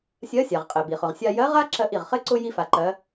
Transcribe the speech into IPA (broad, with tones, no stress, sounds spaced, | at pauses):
sʲ ɜ˧˥ sʲ a˩ ʁ qʼ ɛ˩ b i˩ χ ʊ˩ ʁ sʲ a˧ j ɜ˧˥ ʁ a˥ ǁ ɜ˧ ʔ i˩ ʁ χ ɘ˥ ǀ ʊ˥ j i˥ f a˧ ǃ ɜ˧˥